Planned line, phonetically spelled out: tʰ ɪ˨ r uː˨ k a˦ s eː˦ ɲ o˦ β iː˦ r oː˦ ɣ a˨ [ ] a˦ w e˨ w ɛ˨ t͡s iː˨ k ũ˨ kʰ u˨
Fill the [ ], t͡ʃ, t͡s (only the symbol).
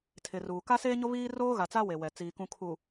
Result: t͡s